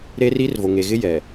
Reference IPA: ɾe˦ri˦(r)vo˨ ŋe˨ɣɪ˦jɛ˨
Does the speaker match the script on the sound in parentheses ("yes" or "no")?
yes